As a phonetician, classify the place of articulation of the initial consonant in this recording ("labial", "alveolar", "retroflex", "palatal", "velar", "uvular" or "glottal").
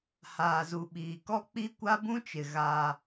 glottal